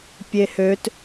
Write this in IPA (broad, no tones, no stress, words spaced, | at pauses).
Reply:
pʲehøt